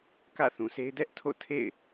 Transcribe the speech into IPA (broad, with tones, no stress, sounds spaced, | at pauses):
k ä̰˦˨ θ ũ˨ sʰ e˦ ɪ̯ d ɛ˦ ʔ tʰ o̰˦˨ tʰ ḛ˦˨ ɪ̯